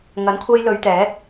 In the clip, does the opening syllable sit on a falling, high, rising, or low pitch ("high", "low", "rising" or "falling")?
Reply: rising